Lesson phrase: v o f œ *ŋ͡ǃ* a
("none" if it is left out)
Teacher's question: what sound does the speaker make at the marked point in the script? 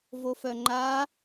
ŋ͡ǃ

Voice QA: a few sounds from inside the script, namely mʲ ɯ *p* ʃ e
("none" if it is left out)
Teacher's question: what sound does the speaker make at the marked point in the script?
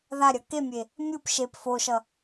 p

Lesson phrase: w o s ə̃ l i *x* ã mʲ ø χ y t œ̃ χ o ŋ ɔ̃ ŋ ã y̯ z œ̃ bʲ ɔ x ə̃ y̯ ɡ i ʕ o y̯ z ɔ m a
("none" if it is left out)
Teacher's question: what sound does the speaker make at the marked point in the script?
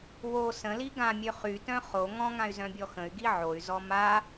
ɡ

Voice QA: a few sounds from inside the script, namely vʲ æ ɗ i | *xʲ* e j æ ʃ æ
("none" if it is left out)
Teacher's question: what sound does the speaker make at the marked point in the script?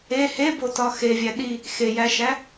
x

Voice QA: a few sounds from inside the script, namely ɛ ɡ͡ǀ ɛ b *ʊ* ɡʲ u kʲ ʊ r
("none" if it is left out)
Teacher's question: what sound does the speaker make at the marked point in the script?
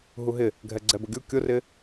ʊ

